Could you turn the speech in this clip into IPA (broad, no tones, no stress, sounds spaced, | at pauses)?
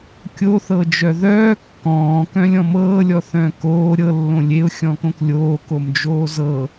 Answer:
kʲ o θ ɤ d͡ʒ œ ð œː kː ɔ̃ː k œ̃ lʲ ɔ̃ m ɤː lʲ ɔ θ œ̃ː k oː ɾʲ ɤ lː õ lʲ e ʊ̯ xʲ ɔ̃ k õ k lʲ oː k o m d͡ʒ oː z ɤ